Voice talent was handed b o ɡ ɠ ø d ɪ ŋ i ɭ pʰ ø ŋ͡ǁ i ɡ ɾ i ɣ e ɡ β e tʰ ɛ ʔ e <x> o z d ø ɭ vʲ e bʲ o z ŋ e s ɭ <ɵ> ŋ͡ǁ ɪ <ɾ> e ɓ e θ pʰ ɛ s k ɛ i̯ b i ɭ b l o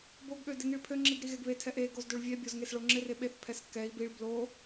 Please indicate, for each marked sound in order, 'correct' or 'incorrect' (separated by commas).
incorrect, incorrect, incorrect